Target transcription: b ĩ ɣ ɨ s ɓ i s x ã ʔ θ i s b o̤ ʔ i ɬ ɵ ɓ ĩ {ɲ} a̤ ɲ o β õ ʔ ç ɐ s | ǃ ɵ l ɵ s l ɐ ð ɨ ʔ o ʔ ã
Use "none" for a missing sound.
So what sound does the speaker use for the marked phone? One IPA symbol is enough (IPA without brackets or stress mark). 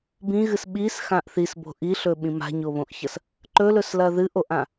m